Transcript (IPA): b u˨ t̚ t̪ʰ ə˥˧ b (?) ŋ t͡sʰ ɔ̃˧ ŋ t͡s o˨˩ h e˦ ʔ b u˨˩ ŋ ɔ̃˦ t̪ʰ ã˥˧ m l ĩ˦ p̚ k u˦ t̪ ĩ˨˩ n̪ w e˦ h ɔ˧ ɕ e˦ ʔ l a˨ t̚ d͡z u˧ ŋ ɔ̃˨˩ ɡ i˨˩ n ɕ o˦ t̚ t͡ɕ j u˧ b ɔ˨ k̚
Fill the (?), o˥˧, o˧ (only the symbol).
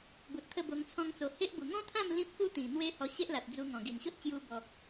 o˧